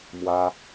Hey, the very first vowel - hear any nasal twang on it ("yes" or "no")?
no